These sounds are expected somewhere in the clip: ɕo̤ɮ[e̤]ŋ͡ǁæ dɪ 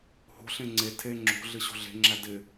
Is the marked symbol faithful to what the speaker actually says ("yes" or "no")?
yes